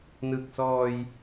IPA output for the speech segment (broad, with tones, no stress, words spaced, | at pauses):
nɯ˨˩k̚sɔː˧j